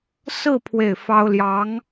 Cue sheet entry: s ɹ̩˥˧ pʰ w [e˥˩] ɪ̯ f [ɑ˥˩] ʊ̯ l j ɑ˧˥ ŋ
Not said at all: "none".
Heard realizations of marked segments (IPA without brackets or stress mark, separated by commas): e˥˩, ɑ˥